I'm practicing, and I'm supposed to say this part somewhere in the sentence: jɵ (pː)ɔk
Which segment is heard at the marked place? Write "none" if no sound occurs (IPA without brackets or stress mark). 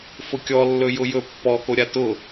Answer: pː